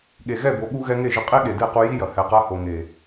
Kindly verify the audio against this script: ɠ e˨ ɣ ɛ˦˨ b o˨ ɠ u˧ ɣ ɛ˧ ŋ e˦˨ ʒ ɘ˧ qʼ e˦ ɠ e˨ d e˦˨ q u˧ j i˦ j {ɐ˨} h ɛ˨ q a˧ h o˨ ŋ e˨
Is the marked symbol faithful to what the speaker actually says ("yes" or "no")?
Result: yes